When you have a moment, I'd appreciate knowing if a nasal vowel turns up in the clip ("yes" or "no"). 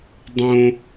yes